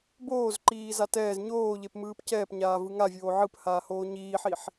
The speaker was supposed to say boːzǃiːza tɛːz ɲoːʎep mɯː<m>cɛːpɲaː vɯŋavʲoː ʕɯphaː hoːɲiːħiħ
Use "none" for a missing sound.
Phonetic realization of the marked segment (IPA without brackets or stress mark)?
p